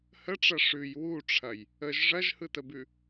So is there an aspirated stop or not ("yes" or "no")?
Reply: yes